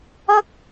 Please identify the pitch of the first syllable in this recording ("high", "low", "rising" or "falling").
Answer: high